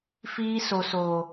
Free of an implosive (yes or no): yes